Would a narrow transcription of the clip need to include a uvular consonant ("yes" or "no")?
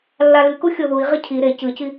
yes